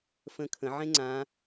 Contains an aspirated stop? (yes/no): yes